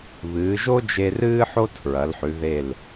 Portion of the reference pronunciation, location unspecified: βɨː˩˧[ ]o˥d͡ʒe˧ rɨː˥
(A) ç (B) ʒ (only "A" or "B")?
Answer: B